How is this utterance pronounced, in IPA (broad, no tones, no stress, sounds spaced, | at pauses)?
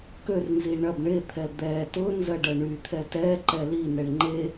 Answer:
k ø r n z i ɳ ɐ b ɳ e t̪ʰ ɛ d̪ ɛ t ʊ n z ɐ ɖ ɐ ɳ y t̪ʰ ɛ t ɛ ǃ ɛ l i n ɛ ɳ ŋ͡ǃ e